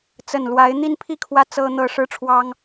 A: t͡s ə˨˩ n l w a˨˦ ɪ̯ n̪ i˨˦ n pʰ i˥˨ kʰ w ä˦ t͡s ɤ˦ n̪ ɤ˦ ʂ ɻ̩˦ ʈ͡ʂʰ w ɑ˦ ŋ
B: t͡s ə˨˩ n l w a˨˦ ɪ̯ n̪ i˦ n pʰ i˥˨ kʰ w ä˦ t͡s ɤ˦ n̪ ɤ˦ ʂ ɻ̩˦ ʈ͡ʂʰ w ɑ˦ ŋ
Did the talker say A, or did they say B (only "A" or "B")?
B